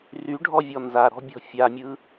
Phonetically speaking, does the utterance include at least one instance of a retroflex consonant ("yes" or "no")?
yes